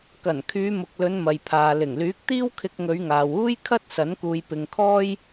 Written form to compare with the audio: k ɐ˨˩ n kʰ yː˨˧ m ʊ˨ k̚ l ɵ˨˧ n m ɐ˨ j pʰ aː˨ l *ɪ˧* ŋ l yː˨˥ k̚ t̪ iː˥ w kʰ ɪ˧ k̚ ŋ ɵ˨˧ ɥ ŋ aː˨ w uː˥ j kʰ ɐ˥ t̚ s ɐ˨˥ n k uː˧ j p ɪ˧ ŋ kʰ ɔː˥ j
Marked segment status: incorrect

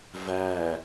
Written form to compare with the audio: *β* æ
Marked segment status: incorrect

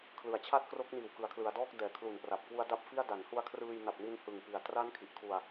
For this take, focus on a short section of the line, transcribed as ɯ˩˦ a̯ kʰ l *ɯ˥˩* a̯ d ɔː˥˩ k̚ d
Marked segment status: incorrect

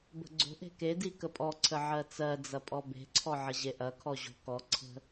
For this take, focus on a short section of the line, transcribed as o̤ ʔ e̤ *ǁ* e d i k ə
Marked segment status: incorrect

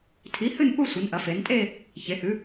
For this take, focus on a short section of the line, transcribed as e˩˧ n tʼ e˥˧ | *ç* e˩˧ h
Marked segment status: correct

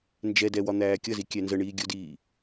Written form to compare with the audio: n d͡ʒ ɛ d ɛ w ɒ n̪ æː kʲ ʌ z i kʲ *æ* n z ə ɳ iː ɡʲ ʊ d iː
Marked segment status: correct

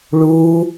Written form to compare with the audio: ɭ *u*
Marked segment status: correct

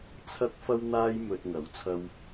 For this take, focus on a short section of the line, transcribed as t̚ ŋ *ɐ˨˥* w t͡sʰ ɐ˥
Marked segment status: correct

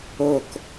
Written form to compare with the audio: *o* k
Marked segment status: correct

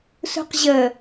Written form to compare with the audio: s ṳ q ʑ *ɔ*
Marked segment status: incorrect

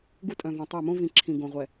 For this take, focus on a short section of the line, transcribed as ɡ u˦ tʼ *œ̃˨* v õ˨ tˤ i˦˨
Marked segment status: correct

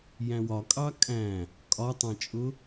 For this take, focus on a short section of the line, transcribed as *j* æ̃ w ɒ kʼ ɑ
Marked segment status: correct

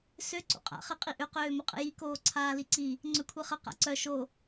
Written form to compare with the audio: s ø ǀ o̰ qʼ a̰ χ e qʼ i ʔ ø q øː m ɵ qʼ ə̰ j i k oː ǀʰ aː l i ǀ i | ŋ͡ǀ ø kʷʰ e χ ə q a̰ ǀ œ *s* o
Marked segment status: incorrect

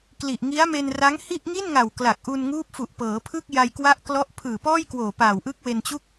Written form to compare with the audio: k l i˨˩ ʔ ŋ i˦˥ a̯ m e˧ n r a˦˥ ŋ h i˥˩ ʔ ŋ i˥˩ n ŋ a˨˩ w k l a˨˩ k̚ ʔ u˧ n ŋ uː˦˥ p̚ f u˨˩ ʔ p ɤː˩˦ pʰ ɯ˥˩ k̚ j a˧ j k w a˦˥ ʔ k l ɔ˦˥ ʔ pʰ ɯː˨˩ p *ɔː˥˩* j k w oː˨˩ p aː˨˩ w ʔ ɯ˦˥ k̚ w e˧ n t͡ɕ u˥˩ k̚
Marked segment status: correct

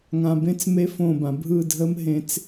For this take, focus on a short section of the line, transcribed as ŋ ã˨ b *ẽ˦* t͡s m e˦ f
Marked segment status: correct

